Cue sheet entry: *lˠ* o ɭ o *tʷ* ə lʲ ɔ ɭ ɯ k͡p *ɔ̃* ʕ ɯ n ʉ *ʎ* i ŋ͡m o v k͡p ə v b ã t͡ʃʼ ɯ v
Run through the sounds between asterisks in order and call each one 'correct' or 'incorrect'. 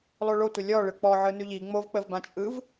correct, correct, incorrect, correct

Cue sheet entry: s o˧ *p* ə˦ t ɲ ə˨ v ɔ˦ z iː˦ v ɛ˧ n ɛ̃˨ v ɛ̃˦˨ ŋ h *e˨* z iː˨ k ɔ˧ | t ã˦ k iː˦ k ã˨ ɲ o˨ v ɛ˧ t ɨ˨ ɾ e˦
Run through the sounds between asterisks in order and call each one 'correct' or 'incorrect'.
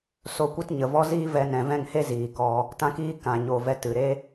incorrect, incorrect

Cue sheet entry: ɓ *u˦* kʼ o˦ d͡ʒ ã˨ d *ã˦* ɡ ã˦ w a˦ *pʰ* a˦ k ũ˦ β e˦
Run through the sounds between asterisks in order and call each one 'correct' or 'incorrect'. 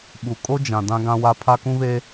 incorrect, correct, correct

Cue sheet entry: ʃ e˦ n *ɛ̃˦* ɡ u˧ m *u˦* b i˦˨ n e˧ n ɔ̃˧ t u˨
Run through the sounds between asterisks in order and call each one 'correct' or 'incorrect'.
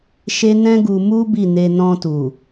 correct, correct

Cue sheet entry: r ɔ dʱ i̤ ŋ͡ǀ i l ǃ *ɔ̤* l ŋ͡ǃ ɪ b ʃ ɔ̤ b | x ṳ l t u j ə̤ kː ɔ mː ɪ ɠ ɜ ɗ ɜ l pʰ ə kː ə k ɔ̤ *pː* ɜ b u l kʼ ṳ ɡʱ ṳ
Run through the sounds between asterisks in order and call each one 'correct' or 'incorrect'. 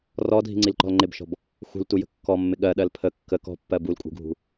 correct, correct

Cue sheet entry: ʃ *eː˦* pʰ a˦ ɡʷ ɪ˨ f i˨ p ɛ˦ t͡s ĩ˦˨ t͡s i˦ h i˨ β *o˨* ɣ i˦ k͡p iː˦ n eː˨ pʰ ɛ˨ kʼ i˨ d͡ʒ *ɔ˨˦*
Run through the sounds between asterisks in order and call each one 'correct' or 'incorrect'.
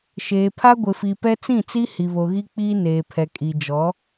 incorrect, correct, correct

